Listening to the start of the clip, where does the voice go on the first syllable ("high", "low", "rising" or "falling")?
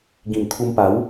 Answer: low